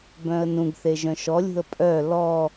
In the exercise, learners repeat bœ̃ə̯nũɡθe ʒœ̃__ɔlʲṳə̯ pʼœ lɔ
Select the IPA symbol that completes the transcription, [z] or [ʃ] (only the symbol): ʃ